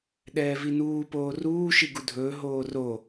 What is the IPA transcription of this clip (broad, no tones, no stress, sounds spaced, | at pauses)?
ɗ ɛː v i n uː p oː r uː ʃ i ɡ u dʱ ɵː ɦ oː r o